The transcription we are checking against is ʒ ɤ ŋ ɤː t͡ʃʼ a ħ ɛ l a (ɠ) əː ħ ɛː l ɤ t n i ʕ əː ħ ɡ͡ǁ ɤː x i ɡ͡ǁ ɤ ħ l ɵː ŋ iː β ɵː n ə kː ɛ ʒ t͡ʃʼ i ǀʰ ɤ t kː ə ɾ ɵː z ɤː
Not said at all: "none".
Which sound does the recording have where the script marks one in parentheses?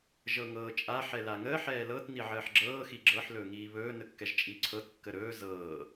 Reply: ŋ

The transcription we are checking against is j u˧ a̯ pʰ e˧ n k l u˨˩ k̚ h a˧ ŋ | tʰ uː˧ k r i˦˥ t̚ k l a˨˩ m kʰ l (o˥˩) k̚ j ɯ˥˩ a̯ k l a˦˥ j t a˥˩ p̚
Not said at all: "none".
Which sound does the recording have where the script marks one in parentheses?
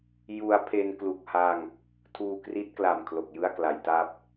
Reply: o˨˩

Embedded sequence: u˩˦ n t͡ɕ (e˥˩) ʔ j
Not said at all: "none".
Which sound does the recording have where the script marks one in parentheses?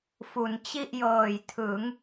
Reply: i˥˩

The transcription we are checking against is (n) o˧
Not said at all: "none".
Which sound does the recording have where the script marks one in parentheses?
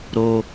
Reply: ɾ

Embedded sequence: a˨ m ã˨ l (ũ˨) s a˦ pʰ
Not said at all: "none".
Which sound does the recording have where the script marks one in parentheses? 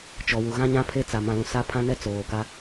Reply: ũ˨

